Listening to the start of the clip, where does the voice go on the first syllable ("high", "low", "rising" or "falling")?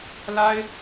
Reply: high